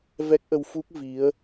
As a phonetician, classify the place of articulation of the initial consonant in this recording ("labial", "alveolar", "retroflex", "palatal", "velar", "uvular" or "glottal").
labial